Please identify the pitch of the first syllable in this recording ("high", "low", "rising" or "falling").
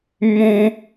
high